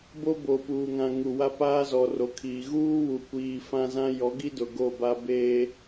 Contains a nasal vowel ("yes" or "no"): yes